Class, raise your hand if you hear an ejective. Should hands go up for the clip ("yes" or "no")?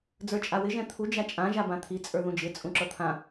yes